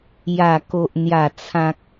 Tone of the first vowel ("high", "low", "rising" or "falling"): low